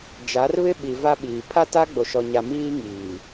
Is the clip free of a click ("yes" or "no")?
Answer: yes